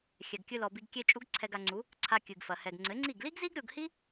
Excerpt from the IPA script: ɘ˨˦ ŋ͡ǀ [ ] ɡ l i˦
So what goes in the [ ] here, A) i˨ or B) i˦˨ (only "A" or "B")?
B